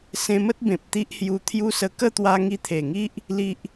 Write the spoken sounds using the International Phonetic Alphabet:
sẽ˧mə˦t̚bẽ˨p̚ t̪i˦ʔhju˧t̪ʰju˦sə˧ kə˥˧t̪wa˧ ŋi˧t̪ʰe˨˩ŋi˦ʔ | li˦ʔ

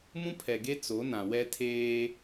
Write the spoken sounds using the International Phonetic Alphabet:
mũ˦pʰɛ˨ɡe˦ t͡so˨˦nã˨ wɛ˦ tʰeː˦

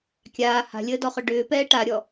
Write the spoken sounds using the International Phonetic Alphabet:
kʲaː ha̤lʲəːdɔχʏ ɖʏːpɛː ʈaɾʲɔ

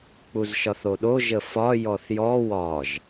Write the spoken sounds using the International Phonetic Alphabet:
k͡puzʃɒθoɗo ʒəfɒ jɔθjɔ wɒʒ

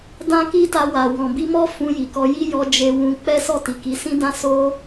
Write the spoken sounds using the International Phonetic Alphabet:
dã˦ki˦ta˧ wa˨wɔ̃˨bi˧mɔ˦ fũ˧ji˨kɔ˧ ji˦jɔ˧ d͡ʒe˧wũ˧ k͡pɛ˦ sɔ˦˨ti˨ki˨˦ sĩ˦dã˦ so˧

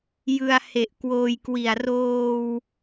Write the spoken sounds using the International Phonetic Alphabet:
jɯ˧a̯he˨˩ʔ kwoː˧jkwi˨˩a̯ roː˧w

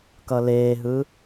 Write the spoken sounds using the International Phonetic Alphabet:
kʌleːɦɯ

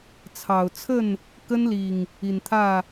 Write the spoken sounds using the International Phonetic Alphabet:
t͡sʰɑ˨˩ʊ̯t͡sʰə˥˨n | kə˦nli˨˩ŋ | i˨˩nt̪ʰä˥˨

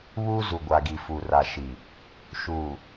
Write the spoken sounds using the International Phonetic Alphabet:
βuː˦zu˨ɡʷa˨ɡi˨ fu˨ra˨ʃi˨ | ʃuː˨

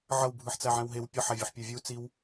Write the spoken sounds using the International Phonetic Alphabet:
ʕʌwbʱɯħt͡sæ ʕɛ̃wɦew pʲʌħævʲɯħ pʲə˞vʲu t͡siw

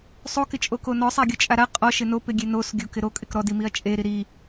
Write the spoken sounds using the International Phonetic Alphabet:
sˤo kɪt͡ʃʼokonɔ sˤaɡʲot͡ʃʼaɾa qʼɔ ʃɪno pɪɡʲenos ɡʲokɪɾo kʼɪkɾɔdi miɐ̯t͡ʃʼeɾi ɾi

